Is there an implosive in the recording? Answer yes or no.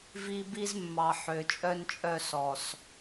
no